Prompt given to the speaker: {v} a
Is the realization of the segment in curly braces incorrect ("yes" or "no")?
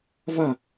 no